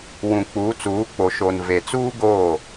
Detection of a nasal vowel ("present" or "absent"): present